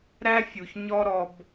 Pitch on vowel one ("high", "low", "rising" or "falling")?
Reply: high